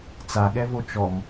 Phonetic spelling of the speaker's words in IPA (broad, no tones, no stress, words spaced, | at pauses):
t͡saɠɛvo t͡ʃɔm